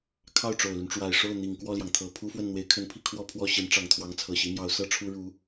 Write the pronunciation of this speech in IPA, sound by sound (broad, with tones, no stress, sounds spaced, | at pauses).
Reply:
kʰ ɑ˥˩ ʊ̯ ʈ͡ʂ o˨˩ ʊ̯ l y˦ n ʈ͡ʂ w a˨˩ ɪ̯ ʂ o˥˩ ʊ̯ n̪ i˨˩ ŋ k w ɔ˥˩ l j ɑ˩ ŋ t̪ʰ ɤ˨˩ pʰ u˥ f w ə˥˩ n n̪ w e˧˥ ɪ̯ kʰ ə˧˥ n pʰ i˥˧ kʰ w ɔ˥˧ pʰ w ɔ˥˩ ɕ i˧˥ n ʈ͡ʂ ɑ˨˩ ŋ t̪ʰ w ɑ˧˥ ŋ t͡sʰ ɤ˨˩ ɕ i˧˥ m j ɑ˧˥ ʊ̯ s ɤ˥ ʈ͡ʂʰ u˥ ɻ u˧˥